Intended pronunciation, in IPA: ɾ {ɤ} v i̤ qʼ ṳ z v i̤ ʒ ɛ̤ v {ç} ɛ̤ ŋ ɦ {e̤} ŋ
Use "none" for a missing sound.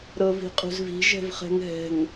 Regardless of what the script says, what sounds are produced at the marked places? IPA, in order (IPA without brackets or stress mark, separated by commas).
ɤ, χ, ɛ̤